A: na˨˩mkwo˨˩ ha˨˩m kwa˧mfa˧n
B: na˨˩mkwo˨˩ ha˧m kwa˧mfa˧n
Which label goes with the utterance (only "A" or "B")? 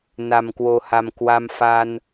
A